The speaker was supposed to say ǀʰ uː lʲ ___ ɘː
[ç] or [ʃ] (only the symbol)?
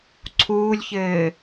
ç